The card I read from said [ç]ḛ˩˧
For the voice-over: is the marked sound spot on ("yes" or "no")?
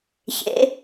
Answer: yes